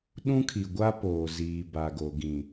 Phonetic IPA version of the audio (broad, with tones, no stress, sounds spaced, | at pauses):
ɗ ũ˦ kʰ i˨ ɡʷ a˦ p oː˨ z iː˨ b a˨ ɡ o˨ ɡ ĩ˨